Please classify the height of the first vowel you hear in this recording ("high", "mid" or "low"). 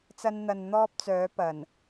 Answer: low